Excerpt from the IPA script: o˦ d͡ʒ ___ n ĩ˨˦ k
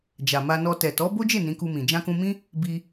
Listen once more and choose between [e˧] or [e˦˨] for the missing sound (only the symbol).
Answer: e˦˨